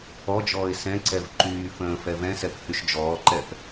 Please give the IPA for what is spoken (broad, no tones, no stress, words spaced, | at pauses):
ɔd͡ʒɔːɪ̯ sɛ̃ǀɛv ǃyː fə̃ː fɛvɛ̃sɛp hyʃd͡ʒɔːǃɛp